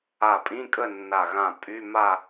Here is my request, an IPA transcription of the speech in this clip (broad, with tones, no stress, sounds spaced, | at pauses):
a˧˩ pʼ ĩ˧˥˧ kʼ ə˥˨ nː a˧˩ ɣ ã˧˩ pʼ y˧˥˧ m a˥˨